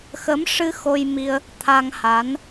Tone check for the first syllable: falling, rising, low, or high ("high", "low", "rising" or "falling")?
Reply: rising